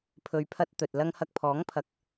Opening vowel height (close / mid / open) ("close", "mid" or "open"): mid